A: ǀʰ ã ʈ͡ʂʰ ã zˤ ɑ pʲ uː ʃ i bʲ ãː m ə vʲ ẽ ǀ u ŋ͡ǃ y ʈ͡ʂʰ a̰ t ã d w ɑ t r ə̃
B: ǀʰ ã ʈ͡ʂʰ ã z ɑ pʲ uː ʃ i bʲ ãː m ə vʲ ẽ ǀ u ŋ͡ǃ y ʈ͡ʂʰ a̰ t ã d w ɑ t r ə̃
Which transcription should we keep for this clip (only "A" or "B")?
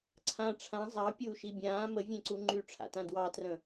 A